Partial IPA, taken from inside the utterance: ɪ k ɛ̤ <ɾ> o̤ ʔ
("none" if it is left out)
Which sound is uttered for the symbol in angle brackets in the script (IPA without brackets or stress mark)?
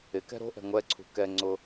ɾ